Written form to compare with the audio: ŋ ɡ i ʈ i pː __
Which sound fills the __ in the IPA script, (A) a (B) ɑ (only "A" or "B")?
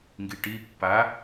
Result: A